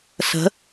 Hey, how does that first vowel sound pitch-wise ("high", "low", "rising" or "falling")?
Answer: rising